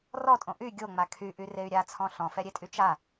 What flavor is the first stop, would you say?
ejective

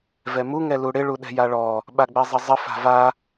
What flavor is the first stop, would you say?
implosive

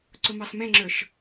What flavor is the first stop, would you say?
click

